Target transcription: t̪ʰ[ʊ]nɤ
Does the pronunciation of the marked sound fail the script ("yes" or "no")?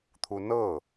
yes